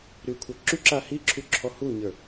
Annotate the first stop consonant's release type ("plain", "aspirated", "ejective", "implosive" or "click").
aspirated